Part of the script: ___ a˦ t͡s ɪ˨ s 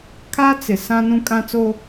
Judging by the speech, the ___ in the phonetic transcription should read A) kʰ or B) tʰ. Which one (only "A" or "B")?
A